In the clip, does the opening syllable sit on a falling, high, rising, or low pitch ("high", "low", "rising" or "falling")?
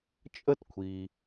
high